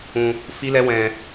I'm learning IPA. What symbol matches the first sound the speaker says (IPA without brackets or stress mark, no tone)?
ũ